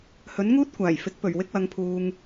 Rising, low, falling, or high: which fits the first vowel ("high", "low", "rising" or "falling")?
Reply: rising